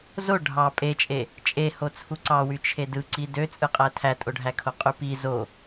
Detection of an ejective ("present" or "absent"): present